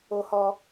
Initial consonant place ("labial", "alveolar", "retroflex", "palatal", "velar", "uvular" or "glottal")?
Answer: glottal